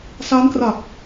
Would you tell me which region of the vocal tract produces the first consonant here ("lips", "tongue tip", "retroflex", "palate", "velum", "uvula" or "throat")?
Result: tongue tip